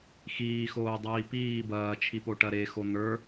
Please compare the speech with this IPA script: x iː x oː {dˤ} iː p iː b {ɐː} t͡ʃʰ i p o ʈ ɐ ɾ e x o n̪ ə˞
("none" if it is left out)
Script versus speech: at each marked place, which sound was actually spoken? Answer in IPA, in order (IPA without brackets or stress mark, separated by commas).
dˤ, ɐː